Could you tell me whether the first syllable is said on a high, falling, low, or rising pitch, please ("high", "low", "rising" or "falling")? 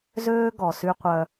high